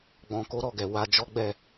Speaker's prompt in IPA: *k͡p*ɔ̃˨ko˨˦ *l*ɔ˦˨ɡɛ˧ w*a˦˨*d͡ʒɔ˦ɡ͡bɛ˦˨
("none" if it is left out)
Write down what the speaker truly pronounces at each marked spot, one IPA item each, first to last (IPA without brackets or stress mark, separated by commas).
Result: ɡ͡b, ɾ, a˧